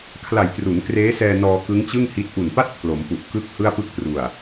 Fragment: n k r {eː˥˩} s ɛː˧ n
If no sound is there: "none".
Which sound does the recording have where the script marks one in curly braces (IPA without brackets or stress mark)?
eː˦˥